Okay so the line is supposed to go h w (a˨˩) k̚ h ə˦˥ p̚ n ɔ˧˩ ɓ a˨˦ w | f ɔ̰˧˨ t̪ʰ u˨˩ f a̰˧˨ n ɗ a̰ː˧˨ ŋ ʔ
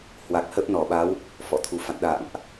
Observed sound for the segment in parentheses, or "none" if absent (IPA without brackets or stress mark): a˨˩